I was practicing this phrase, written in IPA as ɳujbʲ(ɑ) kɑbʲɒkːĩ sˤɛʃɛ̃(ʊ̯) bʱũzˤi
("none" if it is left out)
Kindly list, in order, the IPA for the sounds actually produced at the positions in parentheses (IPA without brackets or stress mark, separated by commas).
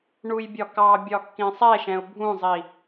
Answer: ɒ, ʊ̯